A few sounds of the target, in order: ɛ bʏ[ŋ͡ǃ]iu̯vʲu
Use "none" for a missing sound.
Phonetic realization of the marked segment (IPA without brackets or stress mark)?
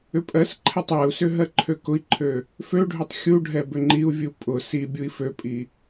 ŋ͡ǃ